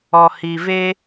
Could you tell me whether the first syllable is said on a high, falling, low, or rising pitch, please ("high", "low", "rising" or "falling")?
low